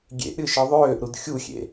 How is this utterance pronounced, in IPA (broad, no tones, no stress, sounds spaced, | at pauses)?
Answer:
ɡʲ ḛ ʔ ɾʲ ɯ ʃ ɯ ðˤ øː ʔ ɾ u d xʲ u xʲ ḛ